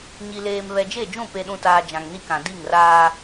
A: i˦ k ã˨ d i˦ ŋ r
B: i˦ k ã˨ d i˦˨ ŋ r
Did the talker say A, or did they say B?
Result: B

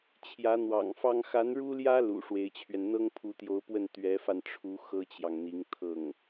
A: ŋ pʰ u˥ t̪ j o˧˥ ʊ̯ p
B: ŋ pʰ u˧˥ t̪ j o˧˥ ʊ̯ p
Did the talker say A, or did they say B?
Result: B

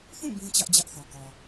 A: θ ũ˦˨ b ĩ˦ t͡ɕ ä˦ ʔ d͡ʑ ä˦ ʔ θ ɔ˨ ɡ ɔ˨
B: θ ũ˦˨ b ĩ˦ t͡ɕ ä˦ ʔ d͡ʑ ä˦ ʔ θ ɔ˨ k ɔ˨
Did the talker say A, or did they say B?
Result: B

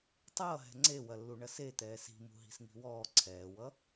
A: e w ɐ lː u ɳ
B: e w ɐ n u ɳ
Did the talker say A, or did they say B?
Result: A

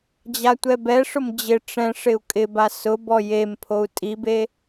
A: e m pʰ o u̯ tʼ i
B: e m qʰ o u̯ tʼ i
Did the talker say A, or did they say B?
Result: A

